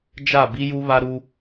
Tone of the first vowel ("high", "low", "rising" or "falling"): falling